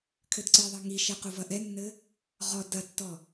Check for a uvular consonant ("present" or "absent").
present